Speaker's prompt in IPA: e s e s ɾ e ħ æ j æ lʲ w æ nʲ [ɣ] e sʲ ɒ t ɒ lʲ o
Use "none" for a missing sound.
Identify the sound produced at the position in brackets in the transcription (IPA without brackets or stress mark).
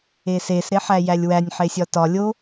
ħ